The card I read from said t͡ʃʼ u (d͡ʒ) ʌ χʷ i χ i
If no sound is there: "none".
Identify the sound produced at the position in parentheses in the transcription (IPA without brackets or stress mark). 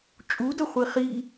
d